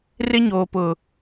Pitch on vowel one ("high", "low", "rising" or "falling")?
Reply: high